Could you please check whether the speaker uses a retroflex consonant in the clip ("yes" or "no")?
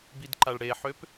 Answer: yes